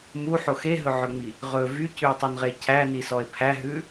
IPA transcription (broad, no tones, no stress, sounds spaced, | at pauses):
m u ħ o x e ɦ ɵ ʕ ɵ ŋ͡m i | ʁ ɵ v y c ʉ e̯ tˤ o n ʁ e cʰ æ n i s ɔ e̯ pʰ æ ɦ ʉ